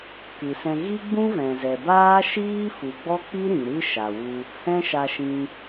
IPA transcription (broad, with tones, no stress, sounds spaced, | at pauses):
k ɨ˨ s ɛ̃˧ ɣ i˦ ɡ͡b ũ˦ v ɛ̃˨ z ɛ˨ b aː˦ ʃ iː˦ f u˨ ɡ͡b ɔ˦ k͡p i˦ ɾ ĩ˨ ɾ ɨ˦ ʃ a˨ w u˧ | h ɛ̃˦ ʃ a˧ ʃ ĩ˧